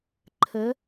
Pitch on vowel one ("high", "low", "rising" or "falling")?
rising